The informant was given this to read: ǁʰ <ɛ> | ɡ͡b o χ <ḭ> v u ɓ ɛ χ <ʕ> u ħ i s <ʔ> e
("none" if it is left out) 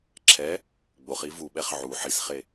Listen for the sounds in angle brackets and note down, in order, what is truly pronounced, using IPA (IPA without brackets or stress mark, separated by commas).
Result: ɛ, i, ʕ, χ